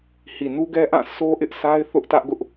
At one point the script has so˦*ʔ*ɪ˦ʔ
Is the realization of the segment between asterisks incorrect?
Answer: no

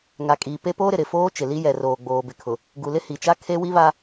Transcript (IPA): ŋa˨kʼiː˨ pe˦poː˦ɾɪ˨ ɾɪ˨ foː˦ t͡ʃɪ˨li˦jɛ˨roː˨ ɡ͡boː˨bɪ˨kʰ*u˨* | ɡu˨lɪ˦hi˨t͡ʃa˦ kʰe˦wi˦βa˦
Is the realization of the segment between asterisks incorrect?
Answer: yes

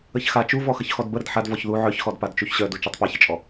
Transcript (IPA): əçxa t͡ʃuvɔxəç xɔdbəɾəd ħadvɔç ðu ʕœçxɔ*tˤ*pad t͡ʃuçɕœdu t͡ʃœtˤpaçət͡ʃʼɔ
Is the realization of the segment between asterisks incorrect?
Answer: yes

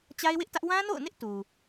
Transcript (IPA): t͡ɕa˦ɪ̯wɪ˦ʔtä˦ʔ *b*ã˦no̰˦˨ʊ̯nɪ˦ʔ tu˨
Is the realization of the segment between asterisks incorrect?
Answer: yes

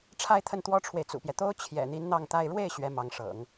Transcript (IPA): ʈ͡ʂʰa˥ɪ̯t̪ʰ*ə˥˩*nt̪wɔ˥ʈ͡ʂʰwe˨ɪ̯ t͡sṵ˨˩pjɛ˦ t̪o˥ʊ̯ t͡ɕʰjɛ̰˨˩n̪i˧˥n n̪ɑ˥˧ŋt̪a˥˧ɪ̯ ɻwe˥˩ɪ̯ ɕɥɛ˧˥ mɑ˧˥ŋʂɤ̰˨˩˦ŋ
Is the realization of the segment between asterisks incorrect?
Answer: no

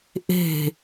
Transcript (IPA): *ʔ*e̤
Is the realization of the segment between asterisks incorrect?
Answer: no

